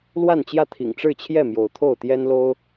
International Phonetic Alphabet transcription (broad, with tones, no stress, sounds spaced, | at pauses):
l w a˥˨ n t͡ɕ j ä˥˨ t̪ʰ ḭ˨˩ ŋ ʈ͡ʂ ɻ̩˥˨ t͡ɕʰ j ɛ˥˨ m j o˨˦ ʊ̯ t̪ʰ o˥˨ ʊ̯ t̪ j ɛ˦ n l o˦ ʊ̯